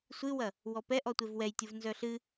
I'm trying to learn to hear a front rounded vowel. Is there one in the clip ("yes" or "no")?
yes